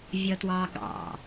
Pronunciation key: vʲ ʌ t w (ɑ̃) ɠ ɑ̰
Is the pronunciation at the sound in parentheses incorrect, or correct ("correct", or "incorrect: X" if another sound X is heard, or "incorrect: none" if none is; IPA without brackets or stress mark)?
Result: incorrect: ɑ